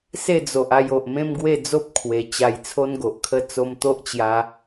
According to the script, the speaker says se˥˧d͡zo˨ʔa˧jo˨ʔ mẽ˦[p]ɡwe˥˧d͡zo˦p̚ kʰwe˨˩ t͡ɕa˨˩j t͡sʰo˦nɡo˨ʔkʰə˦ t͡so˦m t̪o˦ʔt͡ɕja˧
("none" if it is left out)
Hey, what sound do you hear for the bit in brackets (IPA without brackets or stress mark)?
m